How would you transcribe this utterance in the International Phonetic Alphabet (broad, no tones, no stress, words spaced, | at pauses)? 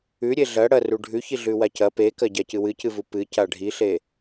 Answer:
ʉɾʲe ɮɐ ɽɐru ɖʱʉçiɮʉwa cɐ pekɐɟacɨ wɨcɨvu pɨca ɖʱiɬe